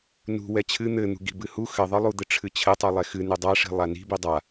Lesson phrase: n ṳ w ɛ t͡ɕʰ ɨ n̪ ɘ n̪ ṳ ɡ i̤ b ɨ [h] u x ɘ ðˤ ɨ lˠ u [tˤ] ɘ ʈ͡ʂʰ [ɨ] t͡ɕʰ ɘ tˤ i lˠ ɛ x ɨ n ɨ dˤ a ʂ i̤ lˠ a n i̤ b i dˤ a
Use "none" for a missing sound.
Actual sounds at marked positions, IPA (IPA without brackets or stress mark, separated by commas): h, d̪, ɨ